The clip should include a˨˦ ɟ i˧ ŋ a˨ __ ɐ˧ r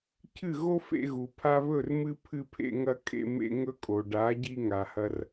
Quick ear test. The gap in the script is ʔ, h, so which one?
h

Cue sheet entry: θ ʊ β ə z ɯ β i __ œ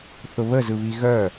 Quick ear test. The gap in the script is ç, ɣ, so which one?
ɣ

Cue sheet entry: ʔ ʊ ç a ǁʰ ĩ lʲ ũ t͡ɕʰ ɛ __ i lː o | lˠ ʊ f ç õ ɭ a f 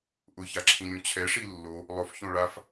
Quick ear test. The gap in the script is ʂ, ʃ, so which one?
ʂ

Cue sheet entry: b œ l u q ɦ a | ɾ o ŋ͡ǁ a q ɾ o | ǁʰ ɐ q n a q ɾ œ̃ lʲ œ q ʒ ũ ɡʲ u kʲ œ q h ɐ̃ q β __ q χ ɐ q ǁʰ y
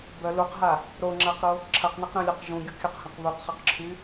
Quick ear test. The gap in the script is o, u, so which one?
u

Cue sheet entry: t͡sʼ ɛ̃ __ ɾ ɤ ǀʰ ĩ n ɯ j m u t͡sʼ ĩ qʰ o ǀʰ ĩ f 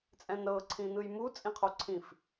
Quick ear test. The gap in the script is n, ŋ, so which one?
n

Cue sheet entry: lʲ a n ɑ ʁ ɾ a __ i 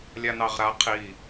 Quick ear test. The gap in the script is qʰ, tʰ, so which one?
qʰ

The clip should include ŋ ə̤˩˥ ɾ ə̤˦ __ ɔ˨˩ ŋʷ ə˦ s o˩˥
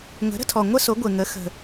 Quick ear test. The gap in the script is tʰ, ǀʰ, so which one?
tʰ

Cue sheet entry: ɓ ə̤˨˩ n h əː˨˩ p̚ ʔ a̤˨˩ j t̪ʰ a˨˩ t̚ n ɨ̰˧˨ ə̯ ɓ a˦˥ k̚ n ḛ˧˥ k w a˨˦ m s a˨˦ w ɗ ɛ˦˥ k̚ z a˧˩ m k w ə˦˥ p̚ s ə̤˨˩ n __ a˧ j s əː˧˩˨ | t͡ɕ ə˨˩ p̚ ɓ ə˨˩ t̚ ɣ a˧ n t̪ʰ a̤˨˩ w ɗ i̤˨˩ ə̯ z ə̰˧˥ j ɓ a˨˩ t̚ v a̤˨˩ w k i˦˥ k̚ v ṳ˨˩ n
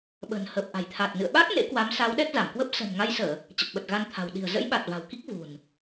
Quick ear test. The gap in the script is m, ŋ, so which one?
ŋ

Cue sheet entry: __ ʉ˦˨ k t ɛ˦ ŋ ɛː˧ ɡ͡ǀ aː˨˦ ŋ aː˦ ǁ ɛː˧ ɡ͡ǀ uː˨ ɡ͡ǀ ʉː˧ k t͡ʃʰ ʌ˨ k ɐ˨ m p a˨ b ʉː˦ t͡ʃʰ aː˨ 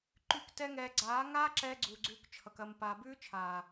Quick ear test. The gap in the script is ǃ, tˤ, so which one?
ǃ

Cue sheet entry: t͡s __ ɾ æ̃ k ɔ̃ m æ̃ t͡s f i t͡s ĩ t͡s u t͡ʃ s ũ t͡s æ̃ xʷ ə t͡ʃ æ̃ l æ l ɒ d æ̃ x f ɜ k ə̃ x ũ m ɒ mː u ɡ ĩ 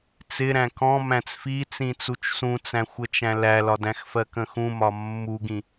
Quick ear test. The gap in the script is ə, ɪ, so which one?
ɪ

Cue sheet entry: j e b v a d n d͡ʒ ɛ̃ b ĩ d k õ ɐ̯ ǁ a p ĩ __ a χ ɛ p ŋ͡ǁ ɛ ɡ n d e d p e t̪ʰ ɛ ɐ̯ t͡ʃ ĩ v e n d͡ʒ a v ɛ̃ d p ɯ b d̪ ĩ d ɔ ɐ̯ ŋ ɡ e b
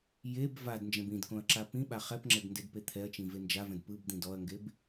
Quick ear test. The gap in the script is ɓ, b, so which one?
ɓ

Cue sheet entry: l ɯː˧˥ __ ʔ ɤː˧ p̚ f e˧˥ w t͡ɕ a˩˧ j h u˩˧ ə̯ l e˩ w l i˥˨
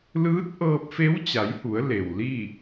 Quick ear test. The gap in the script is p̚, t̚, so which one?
t̚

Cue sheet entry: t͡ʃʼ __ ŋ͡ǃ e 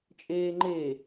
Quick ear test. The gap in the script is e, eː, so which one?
eː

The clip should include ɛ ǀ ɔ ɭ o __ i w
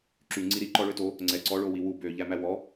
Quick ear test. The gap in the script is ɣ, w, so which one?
w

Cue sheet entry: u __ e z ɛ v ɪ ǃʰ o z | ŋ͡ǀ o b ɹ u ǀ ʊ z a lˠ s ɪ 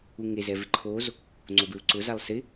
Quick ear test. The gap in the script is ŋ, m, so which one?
ŋ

